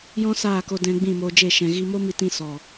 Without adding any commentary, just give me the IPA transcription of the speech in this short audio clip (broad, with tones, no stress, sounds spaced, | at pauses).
j ɔ̃˦ s aː˦˨ k o˧ d ɛ̃˧ ɡ͡b ĩ˦˨ m oː˧ d͡ʒ e˦˨ ʃ ɛ̃˨ ɣ i˧ m o˦ m i˧ t ĩ˧ s ɔ˨